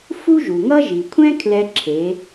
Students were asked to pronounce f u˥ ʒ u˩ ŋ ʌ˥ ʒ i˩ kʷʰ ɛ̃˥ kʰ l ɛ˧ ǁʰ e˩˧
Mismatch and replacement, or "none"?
none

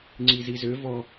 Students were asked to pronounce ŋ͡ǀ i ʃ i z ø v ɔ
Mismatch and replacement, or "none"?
ʃ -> z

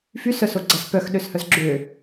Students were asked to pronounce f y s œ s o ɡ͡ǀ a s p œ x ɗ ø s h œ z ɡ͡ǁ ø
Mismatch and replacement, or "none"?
none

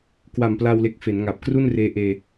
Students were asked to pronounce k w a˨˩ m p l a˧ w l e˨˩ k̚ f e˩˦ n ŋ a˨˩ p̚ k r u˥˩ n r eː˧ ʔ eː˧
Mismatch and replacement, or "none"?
none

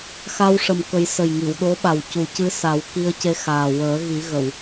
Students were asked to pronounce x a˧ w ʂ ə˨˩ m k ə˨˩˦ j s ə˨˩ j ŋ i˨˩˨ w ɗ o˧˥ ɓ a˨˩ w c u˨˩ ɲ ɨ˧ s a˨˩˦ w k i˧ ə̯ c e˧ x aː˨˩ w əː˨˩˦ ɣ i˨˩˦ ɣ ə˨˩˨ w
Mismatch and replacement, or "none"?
ɲ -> c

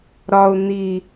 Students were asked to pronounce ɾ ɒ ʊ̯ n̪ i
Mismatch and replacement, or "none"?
none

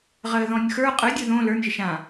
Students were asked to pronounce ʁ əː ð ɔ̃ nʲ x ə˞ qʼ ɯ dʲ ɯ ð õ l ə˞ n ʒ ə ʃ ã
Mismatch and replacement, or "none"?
none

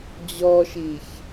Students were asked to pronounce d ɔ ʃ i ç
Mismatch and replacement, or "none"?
d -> d͡ʑ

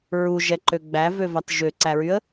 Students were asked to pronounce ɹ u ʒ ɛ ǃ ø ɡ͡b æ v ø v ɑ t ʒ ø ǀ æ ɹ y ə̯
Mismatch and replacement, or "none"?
none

